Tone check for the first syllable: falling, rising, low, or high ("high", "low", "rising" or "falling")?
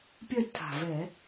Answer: falling